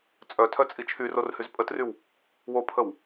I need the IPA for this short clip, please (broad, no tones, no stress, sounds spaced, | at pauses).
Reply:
t͡sʼ œ tʰ œ t͡sʼ i t͡ʃʰ y r o r h y z pʼ ə t r y w | w o pʰ ə w